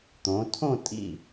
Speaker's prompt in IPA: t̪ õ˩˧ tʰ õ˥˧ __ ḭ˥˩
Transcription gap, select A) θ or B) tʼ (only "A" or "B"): B